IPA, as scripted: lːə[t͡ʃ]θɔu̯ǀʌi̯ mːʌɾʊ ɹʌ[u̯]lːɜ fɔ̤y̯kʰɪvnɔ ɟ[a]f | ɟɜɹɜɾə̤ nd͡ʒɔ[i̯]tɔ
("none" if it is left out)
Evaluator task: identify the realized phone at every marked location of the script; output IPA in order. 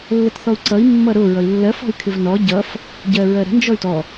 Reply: t, i̯, ʌ, y̯

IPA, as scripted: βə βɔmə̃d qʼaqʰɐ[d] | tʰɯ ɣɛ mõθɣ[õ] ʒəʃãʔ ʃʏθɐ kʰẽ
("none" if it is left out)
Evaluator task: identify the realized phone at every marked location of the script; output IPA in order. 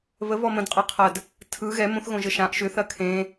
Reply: d, õ

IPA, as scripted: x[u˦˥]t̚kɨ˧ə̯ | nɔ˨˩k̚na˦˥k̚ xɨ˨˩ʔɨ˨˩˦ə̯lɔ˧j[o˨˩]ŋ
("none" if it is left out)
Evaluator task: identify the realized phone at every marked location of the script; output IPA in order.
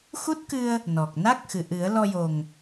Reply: u˦˥, o˨˩

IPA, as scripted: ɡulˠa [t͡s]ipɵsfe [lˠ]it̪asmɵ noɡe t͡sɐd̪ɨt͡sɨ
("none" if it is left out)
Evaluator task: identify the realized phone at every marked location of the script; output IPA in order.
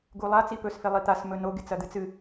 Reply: t͡s, lˠ

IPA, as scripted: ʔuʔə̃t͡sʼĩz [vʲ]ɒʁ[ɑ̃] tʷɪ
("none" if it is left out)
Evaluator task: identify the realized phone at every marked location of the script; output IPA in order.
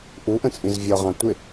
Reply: vʲ, ɑ̃

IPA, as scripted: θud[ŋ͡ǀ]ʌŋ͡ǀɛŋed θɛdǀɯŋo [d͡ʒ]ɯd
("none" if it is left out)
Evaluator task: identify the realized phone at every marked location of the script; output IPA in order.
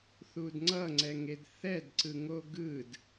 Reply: ŋ͡ǀ, ɡ

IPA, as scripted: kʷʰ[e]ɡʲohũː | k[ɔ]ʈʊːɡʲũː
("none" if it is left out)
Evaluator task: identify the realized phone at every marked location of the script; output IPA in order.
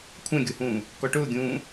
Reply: ẽ, ɔ

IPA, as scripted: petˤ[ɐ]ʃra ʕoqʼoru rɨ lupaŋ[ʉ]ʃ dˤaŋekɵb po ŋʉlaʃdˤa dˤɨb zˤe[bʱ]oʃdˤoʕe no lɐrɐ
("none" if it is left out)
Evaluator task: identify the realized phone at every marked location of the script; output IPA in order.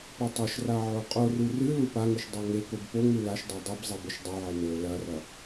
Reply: ɐ, ʉ, b

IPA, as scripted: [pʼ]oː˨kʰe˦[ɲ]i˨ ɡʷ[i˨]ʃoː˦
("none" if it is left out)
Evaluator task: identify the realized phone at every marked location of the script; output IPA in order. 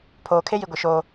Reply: pʰ, j, i˨

